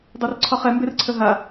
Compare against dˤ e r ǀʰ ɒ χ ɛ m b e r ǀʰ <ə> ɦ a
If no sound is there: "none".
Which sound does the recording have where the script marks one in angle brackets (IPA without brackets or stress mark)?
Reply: ə